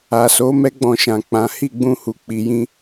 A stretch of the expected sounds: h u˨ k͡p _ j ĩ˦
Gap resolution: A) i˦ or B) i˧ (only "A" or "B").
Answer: B